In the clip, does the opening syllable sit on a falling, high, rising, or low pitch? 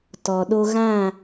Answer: low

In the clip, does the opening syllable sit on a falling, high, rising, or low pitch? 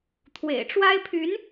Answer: low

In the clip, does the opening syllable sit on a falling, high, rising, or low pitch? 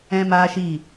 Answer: high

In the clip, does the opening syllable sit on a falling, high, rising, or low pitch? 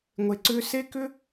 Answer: low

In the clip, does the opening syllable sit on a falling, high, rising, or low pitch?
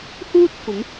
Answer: high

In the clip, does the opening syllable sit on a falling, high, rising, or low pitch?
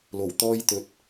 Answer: low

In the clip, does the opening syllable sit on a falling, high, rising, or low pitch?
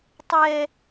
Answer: high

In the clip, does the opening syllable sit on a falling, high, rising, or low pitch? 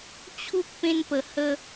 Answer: high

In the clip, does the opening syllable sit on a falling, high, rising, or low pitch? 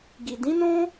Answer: low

